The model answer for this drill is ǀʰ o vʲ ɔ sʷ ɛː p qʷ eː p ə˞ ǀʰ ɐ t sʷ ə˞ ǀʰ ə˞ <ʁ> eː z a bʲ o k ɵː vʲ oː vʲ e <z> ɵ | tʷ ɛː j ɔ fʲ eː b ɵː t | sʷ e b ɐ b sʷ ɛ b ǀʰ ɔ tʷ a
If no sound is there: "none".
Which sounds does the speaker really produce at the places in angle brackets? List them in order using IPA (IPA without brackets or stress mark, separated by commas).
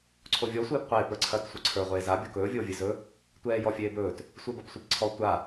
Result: ʁʷ, z